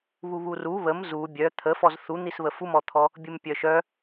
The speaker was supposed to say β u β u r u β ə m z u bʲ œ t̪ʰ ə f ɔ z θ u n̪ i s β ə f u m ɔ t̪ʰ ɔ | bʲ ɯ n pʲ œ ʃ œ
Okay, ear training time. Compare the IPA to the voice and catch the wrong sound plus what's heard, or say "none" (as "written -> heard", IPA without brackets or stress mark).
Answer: n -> m